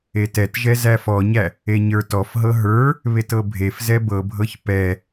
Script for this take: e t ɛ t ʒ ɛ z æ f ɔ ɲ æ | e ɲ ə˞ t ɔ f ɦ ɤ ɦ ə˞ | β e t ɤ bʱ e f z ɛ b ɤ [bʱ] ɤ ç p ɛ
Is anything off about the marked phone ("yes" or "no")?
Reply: no